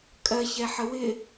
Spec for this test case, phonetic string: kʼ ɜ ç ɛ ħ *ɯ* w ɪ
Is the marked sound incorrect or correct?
incorrect